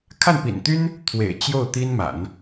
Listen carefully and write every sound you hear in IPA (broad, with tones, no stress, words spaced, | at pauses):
kʰa˥˩npḭ˨˩nt̪y˥n | t̪ʰwḛ˨˩ɪ̯ t͡ɕjo˥˩ʊ̯ t̪i˥nma̰˨˩˦n